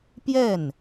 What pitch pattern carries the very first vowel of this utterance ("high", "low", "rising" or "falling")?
falling